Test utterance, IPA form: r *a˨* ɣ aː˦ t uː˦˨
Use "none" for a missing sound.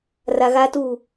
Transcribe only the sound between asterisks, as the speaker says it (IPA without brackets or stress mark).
a˨